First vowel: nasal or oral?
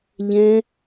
nasal